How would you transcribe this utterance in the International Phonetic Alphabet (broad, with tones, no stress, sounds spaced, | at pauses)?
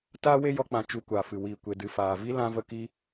t aː˦ w e˦ j ɔ˧ k͡p ã˨ t͡ʃ u˧ kʷ aː˨ f ɨ˨ w iː˨ kʷ e˨ d ɨ˨ f aː˨ v i˦ l ã˧ v ə˧ k i˧